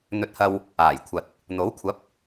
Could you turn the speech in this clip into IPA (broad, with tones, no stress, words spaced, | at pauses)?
n̪ɵ˧t̚hɐ˧w | aː˨˩jkʷʰɐ˨t̚ | n̪o˨˥wkʷʰɐ˨˥p̚